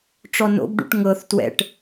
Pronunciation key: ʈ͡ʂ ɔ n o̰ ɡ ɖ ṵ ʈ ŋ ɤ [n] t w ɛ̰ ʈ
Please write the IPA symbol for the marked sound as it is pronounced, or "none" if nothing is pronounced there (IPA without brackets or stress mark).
θ